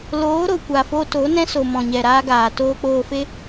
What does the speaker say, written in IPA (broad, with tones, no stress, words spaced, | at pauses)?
loː˨˦ ɾo˨kʷa˨fo˧ to˨˦nɛ̃˦so˨mɔ̃˨ ɲɛ˨ɾaː˧ɡaː˨ toː˧k͡poː˧fe˦